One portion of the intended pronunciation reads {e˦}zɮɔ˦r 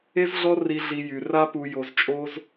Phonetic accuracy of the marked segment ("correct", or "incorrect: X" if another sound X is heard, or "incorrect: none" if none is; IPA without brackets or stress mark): correct